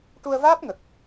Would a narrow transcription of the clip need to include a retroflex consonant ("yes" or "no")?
yes